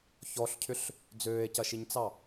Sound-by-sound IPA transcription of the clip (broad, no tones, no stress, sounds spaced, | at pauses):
ç ɔ ɬ cʰ ʏ ɬ | d͡z øː e̯ c ɐ ʃ i ɲ t͡s ɑ